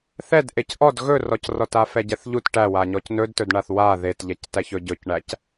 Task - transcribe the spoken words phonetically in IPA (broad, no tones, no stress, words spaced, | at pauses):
θɛd ʔecʔɔd ɣɵrɔcrɔta fɛɟɛθʎut ʈæwaɲɔc nɵdtɵdɳaθ wa ðetʎɛc tæçɵɟɵcɳæc